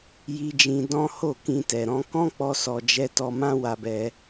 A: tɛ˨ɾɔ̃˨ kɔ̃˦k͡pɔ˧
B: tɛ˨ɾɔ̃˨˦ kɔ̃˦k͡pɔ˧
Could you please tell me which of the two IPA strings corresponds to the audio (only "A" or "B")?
B